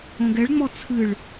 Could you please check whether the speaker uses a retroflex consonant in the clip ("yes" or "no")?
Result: yes